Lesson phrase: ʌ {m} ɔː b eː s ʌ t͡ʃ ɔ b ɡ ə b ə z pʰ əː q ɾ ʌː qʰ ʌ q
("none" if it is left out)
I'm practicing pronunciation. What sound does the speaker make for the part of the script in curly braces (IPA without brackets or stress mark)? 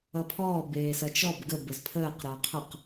pʰ